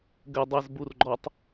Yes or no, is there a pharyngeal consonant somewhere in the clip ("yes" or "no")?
no